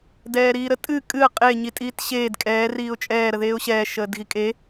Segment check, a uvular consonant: present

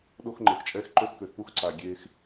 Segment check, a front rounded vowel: present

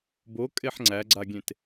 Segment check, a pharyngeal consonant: present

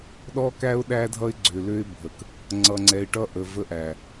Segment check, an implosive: present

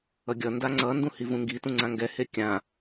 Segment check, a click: present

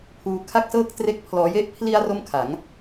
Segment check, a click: absent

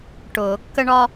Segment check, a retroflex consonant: present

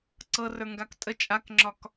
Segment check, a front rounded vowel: absent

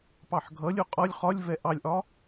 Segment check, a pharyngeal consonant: present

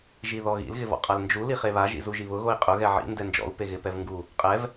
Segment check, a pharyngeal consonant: present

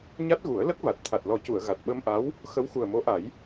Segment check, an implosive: present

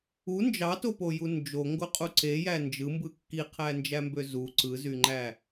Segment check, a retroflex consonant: absent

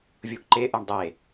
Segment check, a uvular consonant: absent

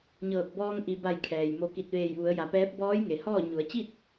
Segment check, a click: absent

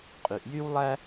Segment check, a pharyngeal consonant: absent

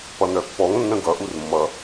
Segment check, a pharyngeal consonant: absent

